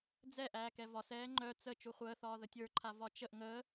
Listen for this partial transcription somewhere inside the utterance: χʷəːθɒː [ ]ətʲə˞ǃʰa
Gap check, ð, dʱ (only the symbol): ð